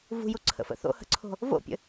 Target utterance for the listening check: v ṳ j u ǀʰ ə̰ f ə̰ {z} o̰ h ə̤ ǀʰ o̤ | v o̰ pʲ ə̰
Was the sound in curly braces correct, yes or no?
no